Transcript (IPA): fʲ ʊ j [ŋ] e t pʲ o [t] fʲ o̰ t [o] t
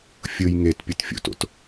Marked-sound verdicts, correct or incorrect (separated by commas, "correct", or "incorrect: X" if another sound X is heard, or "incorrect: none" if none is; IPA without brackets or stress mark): correct, correct, incorrect: o̰